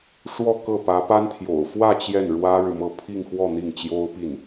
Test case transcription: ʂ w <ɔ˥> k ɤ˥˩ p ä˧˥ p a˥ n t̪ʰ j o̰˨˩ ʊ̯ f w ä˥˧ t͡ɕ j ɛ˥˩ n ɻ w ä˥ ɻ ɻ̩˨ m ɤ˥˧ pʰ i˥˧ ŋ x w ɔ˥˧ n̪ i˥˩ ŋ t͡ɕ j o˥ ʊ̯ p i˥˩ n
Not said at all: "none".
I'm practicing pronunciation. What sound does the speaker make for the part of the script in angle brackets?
ɔ˥˧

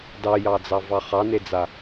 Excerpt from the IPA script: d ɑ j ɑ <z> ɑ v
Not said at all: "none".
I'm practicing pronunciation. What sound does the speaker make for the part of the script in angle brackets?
d͡z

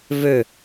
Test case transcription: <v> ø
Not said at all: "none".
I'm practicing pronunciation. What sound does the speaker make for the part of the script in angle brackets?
v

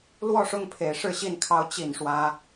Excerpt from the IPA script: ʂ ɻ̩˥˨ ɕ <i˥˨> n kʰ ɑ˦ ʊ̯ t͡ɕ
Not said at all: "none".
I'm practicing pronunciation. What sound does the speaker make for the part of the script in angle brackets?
i˥˨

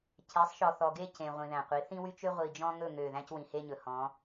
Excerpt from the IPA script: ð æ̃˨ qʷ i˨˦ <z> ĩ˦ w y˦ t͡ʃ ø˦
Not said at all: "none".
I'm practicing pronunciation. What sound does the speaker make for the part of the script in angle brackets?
θ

